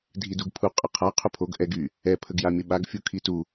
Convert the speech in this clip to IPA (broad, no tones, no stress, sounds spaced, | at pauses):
dʱ i d u ɡ pʰ u qʼ ə qʰ a qʰ u pʰ o ɡ ʔ ɛ ɡ y | ɛ pʰ ə ɡ j a mʲ ə ɓ a ɡ fʲ u kʰ i t u